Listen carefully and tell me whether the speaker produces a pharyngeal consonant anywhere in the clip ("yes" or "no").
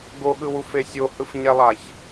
no